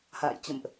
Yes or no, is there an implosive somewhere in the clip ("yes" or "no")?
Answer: no